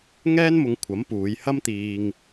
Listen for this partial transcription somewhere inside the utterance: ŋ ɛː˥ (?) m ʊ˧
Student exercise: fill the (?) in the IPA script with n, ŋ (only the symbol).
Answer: n